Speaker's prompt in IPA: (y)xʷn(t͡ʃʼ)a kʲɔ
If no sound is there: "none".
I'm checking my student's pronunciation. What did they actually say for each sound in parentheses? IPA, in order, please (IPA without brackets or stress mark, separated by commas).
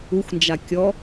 u, d͡ʒ